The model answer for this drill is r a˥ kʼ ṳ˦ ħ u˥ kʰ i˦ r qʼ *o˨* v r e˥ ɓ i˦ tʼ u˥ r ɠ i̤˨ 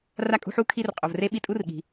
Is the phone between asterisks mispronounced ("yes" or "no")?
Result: no